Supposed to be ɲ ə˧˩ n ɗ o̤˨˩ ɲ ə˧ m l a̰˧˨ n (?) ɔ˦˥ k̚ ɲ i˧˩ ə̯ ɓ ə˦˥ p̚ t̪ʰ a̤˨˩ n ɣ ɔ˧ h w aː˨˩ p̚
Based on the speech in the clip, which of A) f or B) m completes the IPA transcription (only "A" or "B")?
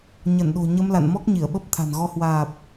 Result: B